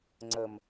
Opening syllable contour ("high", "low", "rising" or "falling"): low